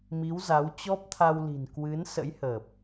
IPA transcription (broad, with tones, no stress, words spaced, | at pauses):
mi˨˦wza˨˦w t͡ɕɔ˦˥p̚t̪ʰa˧wli̤˨˩n kwɨ˨˦nsə̰˧˥jhəː˨˩p̚